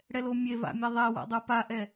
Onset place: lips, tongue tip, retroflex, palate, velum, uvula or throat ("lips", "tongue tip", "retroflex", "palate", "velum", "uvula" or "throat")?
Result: retroflex